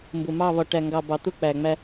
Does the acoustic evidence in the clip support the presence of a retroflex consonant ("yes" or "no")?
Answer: yes